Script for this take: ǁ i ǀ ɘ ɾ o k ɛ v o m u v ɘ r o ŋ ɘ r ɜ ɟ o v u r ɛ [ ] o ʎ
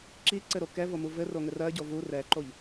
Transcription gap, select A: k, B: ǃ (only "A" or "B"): B